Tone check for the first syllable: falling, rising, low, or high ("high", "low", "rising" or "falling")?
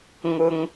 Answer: high